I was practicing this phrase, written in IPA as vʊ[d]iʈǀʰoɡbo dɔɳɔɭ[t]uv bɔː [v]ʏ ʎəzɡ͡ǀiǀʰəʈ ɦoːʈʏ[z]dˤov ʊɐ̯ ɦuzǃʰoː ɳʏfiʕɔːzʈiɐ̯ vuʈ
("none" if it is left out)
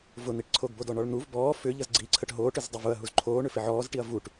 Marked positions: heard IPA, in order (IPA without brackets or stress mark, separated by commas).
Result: n̪, n̪, f, z